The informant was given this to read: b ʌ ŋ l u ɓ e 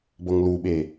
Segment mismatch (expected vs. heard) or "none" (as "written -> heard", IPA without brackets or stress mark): none